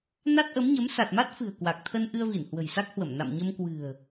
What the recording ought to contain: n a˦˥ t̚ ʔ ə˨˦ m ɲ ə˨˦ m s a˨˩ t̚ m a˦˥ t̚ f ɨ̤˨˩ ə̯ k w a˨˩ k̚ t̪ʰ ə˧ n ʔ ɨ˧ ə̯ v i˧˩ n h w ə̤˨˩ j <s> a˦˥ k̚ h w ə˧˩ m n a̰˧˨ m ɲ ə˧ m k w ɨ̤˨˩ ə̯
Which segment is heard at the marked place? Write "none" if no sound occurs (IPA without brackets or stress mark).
s